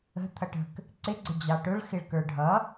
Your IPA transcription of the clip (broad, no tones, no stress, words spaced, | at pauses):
ə̤ t̪ʰʌʈə̤k | ǀɪɡ͡ǀɪ d͡ʑɑʈʊɭ xɪɭkə˞ɖʱʌ